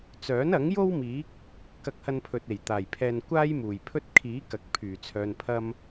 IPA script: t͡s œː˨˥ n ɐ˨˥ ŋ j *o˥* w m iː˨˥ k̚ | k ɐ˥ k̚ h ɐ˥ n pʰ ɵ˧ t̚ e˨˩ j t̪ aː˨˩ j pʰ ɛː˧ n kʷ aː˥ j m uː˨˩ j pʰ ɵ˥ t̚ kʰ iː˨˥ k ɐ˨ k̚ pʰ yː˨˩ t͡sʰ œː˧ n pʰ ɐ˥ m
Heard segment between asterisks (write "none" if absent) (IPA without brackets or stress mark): o˥